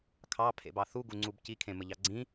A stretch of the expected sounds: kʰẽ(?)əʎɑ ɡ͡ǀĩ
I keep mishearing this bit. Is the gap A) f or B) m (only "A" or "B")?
B